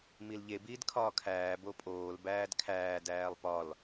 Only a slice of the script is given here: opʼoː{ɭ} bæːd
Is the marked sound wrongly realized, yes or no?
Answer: yes